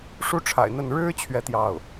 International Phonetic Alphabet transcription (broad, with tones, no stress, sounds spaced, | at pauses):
ʂ u˥˩ ʈ͡ʂʰ a̰˨˩ ɪ̯ n̪ ə˥˩ n ɻ ɻ̩˥ t͡ɕʰ ɥ ɛ˥˧ t̪ j ɑ˥˩ ʊ̯